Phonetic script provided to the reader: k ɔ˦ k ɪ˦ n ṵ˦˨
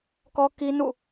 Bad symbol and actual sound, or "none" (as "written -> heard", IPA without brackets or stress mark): ɪ˦ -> i˦